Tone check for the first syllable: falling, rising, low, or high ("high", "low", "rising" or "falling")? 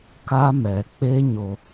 high